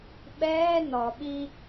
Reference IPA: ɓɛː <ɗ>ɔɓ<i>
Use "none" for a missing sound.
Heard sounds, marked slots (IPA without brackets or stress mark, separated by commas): n, i